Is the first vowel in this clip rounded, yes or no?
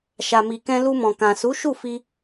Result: no